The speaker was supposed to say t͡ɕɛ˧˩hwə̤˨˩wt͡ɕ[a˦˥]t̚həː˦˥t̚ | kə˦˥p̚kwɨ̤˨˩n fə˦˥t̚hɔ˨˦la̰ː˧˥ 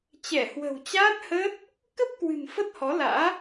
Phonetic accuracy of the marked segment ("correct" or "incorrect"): incorrect